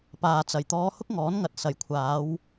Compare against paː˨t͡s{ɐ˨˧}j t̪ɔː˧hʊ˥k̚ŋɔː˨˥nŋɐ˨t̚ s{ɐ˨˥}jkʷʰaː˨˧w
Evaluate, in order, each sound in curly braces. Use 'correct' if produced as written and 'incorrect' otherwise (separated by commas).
incorrect, incorrect